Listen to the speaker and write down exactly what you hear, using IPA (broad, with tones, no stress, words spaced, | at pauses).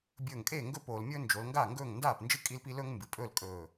bʲɵː˧˩ŋkʼe˥˩ŋɡɵ˥˩p oː˩˧lmʲɵː˥ nd͡ʒo˩˧lŋɡa˥˩ŋɡɵː˥˩ŋ ndaː˥˩pnd͡ʒɨ˥˩ kʼi˥lpi˥ lɵː˥ŋmbɨ˩˧pʼɵː˥˩l kʼɵː˧˩